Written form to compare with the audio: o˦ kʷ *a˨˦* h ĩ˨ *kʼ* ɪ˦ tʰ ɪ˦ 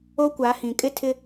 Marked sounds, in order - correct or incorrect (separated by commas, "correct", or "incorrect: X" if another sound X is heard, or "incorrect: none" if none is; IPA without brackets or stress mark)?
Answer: correct, correct